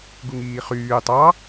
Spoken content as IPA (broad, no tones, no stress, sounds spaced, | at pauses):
ɡ u ŋ iː χ yː tˤ ɑ